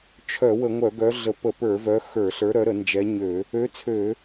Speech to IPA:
t͡ʃʰ œ˧˩˧ w ə˧˩˧ ŋʷ œ˧˩˧ ɡ œ˨˦ ɮ ə˧˩˧ p ə˧˩˧ p ə˞˧˩˧ v œ˨˦ x ə˞˧˩˧ ɬ ə˞˨˦ ɾ œ˨˦ ɾ ə˧˩˧ n d͡ʒ ɛ˨˦ ɲ ø˧˩˧ | ø˨˦ t͡sʰ ø˧˩˧

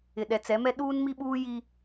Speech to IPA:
ɪ˨ ɗ ɛ˨ t͡s ɛ˨˦ m ɛ˦ ɗ uː˦ n m i˦ ɓ uː˦ j i˦

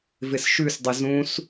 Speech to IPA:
v ɪ s ʃ ʉ s dˤ ɪ z ũ s

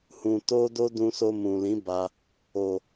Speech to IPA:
h ũ˧ t o˦ d o˦ d ũ˧ s o˧ m ũ˨ l ĩ˨˦ b a˧ | o˨

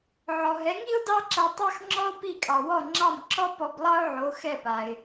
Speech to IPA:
ʕ ɔ˩ ɦ ɛ˩˥ ŋ i˥ ʊ̯ d ɑ˥ ǁ ɐ˧ tˤ ɑ˥ x ŋ͡ǁ ɔ˥ ʊ̯ p i˥˩ kʼ ɑ˩ w ɔ˥˩ ŋ͡ǁ ɑ˥˩ m ǁ ɔ˥ p ɔ˧ b lˠ ɑ˥ ʊ̯ ʕ o˩˥ x ɛ˥˩ p a˩ ɪ̯

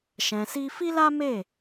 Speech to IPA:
ʃ ɛ̃˧ s i˦ f i˦ l a˦ m e˦˨

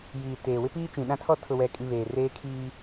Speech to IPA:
j iː˨ t eː˨ w ɪ˦ p iː˦ t͡ʃ ĩ˨ ɗ ã˦ tʰ ɔ˦ tʰ ʊ˨ w ɛ˨ kʼ i˨ β eː˨ r eː˦ kʰ iː˦

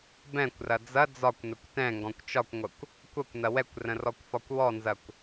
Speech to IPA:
b ɛ̃ kʷ r ɐ d͡z ɐ d͡z ɒ kʷ n ə kʷ t ɛ̃ ŋ ɡ ɔ̃ kʷ t͡ʃ ɒ kʷ ŋʷ ɐ kʷ | kʷ ɐ kʷ n ɐ w ɛ kʷ r ə̃ r ɔ kʷ f ɒ kʷ w ɔ n z ɐ kʷ

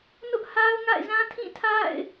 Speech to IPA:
n ʊ˦ ʔ h a˦ ʊ̯ ŋ a̰˦˨ ɪ̯ z ã˦ tʰ ĩ˦˨ tʰ a̰˦˨ ɪ̯

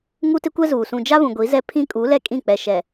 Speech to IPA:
ŋ u˦ t ɪ˦ kʷ ɛ˦ z uː˨ s ũ˨ d͡ʒ a˦ β ũ˨ ɡʷ i˨˦ z ɛ˦ pʰ ĩ˦ kʼ u˨˦ l ɛ˦ kʼ ĩ˦˨ k͡p ɛ˨ ʃ ɛ˨

